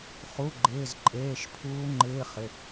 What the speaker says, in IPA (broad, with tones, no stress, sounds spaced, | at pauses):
χ u˩˧˩ ɡ͡ǃ ɪː˩˧˩ z ǃʼ eː˩˧˩ ʃ pʰ uː˧˥ ŋ͡ǃ ɪː˧˥˧ χ ɪ˩˧˩